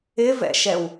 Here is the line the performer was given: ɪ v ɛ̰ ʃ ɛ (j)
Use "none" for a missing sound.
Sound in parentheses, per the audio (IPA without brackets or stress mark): w